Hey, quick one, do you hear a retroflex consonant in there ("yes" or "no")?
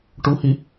yes